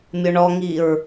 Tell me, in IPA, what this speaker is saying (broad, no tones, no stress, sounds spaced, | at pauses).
mʲ ʊ ɳ ɔ ŋ i ɹ